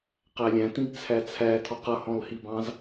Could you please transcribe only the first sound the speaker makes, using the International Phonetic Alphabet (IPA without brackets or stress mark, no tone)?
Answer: q